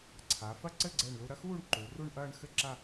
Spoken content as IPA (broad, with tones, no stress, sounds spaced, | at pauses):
ǀʰ a˩˧ f ɐ˥˧ ǀ ɘ˥˧ ɡ͡ǀ ɛ˧˩ ɳ l u˧ ɾ ɐ˥˧ x uː˥˧ ɳ ǃ u˩˧ r u˥˧ ɳ ʔ ɐː˥˧ ɳ x ɘ˥˧ ǁ a˥˧